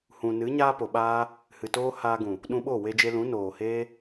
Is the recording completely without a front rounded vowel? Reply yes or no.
yes